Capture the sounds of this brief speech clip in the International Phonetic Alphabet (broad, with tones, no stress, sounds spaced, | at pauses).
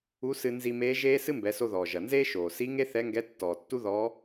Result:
u˧˥ s ɨ˧ n z i˧ m eː˧˥ ʒ eː˥ s ɨ˥ m b ɛ˩˧ s o˧ ð ɔː˩ ʒ ɐ˩ n z eː˥ ʃ oː˩ s i˧˥ ŋ e˥ θ ɛ˧˥ ŋ ɡ ɛ˧˥ tː ɔː˩ tː u˥ ð ɔː˧˥